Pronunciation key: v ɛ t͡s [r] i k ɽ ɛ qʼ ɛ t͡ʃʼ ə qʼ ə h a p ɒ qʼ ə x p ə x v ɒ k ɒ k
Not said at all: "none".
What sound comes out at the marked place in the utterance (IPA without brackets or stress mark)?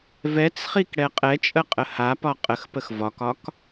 χ